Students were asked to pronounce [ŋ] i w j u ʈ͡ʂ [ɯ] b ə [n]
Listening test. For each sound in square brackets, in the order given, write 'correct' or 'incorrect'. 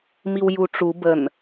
incorrect: m, incorrect: u, correct

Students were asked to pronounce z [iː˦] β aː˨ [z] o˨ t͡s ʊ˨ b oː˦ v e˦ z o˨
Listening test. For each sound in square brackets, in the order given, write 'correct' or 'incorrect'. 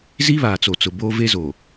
incorrect: i˦, incorrect: t͡s

